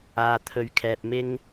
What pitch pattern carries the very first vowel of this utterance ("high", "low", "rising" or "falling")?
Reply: low